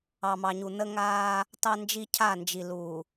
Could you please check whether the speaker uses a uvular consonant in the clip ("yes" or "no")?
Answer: no